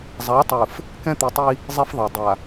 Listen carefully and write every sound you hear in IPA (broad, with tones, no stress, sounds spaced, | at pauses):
zˤ a˨˦ tˤ ɯ˨ f | k ɛ̃˦ t̪ i˨ tˤ i˦ | zˤ e˦ f ðˤ a˨ dˤ a˨